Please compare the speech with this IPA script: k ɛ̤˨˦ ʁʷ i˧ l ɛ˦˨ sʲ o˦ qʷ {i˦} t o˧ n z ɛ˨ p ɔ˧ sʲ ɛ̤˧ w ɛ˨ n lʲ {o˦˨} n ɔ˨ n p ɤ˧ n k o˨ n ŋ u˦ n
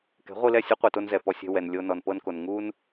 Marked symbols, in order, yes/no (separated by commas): no, no